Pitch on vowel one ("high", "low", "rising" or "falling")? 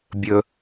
low